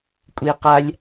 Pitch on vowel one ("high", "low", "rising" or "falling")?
high